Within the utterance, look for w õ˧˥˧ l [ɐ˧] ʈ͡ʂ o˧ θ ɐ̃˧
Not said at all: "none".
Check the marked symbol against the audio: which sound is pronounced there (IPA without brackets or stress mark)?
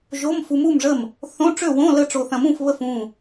ə˧